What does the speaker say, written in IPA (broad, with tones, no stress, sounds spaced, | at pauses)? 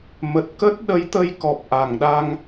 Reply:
m ə˨˩ t̚ k ə˦˥ t̚ ɗ ə˨˦ j t̪ ə˧ j k ɔ˨˩ p̚ ʔ a˧˩ ŋ ɗ a˧ ŋ